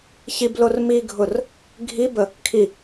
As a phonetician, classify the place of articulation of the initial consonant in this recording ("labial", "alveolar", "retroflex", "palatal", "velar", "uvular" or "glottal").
palatal